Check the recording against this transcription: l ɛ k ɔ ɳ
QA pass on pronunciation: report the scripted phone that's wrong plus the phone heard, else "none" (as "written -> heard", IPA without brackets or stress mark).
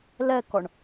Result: none